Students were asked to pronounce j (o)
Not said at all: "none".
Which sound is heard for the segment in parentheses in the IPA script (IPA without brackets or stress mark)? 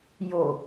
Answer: o